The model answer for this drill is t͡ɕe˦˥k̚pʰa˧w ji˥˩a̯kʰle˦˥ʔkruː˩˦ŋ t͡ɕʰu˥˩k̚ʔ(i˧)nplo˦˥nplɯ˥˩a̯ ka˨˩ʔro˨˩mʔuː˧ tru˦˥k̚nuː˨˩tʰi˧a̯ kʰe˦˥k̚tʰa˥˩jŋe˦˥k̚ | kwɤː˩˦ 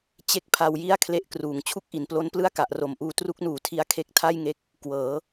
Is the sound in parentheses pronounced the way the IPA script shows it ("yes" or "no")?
no